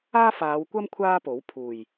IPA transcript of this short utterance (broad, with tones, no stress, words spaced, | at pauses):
aː˥faː˨˧wkʷɐ˥m kʷʰaː˥po˨˥w pʰuː˨˩j